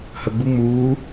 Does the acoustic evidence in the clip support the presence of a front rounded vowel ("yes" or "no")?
no